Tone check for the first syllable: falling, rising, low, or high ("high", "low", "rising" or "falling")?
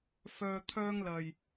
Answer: low